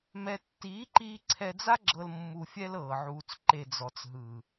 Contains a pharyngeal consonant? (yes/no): yes